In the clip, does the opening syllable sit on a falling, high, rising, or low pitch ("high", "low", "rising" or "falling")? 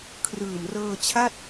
low